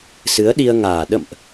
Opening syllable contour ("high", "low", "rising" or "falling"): rising